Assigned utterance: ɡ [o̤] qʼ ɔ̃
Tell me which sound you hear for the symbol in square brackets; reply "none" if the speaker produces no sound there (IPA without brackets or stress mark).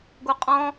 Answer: o